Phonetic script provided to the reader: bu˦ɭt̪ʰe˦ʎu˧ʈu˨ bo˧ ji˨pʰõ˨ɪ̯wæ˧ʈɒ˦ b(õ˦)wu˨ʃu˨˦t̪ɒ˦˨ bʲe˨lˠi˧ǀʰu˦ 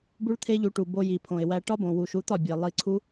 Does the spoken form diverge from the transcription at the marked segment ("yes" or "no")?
yes